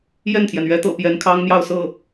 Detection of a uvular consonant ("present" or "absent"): absent